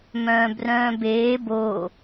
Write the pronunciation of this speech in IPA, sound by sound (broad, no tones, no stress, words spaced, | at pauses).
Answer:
mœ̃ːbrœ̃ːbeː bo